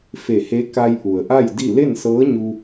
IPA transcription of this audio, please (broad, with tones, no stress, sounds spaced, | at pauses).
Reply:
f e˧˩ h e˧˥ k a˧ j ʔ u˩ ə̯ ʔ a˥˨ j d i˥˨ l e˥˨ n s ɤː˧˥ ɲ u˧